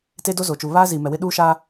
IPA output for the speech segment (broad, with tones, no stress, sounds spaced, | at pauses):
t e˦ d o˦ z o˨ t͡ʃ u˨ β aː˦ z i˨ m ɛ˨ w ɪ˦ ɗ uː˦ ʃ aː˦